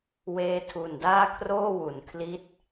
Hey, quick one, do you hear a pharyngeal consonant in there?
no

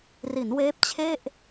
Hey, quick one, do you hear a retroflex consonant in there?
no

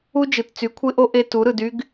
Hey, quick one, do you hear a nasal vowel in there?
no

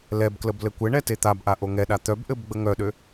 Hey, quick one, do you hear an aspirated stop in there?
no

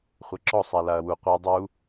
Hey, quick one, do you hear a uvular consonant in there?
yes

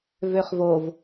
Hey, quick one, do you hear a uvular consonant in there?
yes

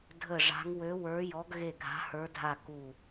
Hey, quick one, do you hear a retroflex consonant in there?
yes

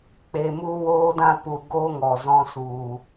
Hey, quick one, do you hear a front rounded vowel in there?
no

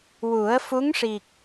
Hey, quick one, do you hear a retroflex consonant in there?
yes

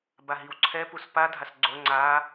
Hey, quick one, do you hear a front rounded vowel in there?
no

